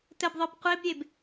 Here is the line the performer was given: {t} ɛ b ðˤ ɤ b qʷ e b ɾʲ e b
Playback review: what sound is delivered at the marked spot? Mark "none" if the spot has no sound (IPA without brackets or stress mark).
t